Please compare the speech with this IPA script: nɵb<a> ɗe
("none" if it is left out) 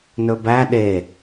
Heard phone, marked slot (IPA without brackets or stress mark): æ